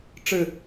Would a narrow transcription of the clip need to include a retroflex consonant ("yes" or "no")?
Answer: yes